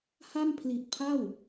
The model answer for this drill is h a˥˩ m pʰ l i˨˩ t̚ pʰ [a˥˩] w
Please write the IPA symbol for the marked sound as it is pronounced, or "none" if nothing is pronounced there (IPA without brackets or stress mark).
a˥˩